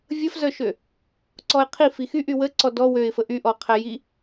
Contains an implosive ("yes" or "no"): no